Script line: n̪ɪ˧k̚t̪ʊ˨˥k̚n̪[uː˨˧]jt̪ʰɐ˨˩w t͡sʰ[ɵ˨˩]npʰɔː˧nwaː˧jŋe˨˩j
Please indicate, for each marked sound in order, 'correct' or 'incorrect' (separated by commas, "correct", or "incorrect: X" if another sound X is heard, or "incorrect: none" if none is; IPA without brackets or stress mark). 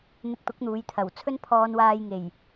correct, incorrect: ɵ˥